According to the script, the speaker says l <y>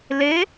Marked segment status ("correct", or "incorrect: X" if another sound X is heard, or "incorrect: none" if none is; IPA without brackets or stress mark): incorrect: e